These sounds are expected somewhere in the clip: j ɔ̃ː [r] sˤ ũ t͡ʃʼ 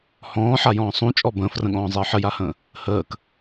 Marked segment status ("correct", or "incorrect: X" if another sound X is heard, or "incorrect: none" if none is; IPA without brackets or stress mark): incorrect: none